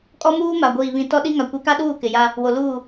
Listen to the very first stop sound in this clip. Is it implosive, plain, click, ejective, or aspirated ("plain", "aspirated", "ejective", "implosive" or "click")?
ejective